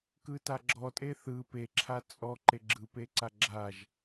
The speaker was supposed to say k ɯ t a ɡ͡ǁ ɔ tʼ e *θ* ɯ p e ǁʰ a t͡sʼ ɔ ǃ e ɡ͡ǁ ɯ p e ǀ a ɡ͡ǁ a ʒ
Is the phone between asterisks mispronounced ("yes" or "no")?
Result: no